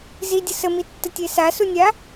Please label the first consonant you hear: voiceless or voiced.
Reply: voiced